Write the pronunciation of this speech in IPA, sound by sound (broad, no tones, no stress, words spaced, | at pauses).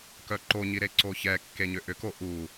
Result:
kœǃoɲi ɾeǀoçɛkːe ɲʏʔʏko ʔu